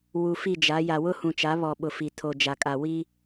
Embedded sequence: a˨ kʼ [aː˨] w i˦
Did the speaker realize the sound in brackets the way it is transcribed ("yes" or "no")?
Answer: no